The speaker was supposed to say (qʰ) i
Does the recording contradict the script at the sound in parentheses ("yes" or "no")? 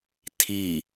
yes